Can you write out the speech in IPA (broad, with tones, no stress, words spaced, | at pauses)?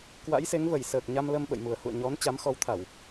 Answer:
kwa̰˧˥jse˨˦ŋvə˧˩jsəː˨˩k̚ ɲa˧mlə˧m ɓə̰˧˨jmu˨˩ə̯ hṵ˧˨ə̯ɲɔ˨˦n t͡ɕa˨˦mxɔ˨˦wt̪ʰa˧˩˨w